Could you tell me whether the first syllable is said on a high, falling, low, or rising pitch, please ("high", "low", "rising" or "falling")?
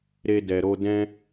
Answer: high